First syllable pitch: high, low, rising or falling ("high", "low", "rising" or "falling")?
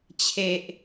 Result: high